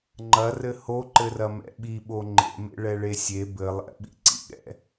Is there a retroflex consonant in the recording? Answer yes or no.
yes